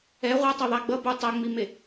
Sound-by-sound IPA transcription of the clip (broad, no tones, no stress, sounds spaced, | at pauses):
ɛ ʁʷ ʌ tˤ o ðˤ a ɡ͡b ʌ b u tˤ a ŋ͡m i m e